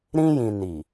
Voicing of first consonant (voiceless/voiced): voiced